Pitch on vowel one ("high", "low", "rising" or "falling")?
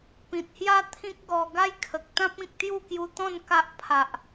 low